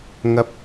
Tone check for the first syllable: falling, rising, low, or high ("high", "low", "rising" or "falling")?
rising